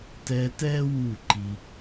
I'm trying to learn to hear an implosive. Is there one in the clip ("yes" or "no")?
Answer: no